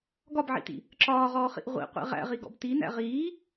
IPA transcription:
ɡ ɒ b ʕ ḭ t ḭ | ǁ ɒː ʁ ɔː χ ḭ ʔ ʁʷ ḭ qʷ ḭ ʁ æ̰ ʁ i ɡ ɔ̰ b t i n æ̰ ʁ iː

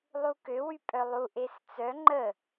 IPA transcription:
lˠ u k ø w y pʼ œ lˠ u ʔ e s t͡s œ ŋ͡ǃ ə

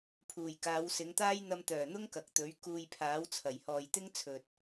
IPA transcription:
pʰ uː˨˩ j k aː˨˧ w s ɪ˨˧ ŋ t̪ aː˥ j n̪ ɐ˧ m t̪ œː˨˩ n̪ ʊ˥ ŋ k ɐ˨ k̚ t̪ ɵ˨˥ ɥ k uː˧ j pʰ aː˨˥ w t͡sʰ ɐ˨˩ j h ɔː˨ j t̪ ɪ˥ ŋ t͡sʰ ɵ˨ t̚

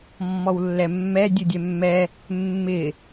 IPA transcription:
mː ɔ w lː ɛ mː ɛ dʲ u dʲ ɛ mː ɛ | mː ɪ

